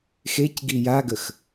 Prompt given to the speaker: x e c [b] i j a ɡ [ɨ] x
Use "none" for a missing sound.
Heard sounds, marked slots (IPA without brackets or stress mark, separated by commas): ɡ, ə